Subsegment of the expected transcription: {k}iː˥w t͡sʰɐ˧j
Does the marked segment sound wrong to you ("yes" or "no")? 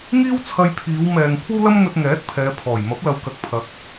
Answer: yes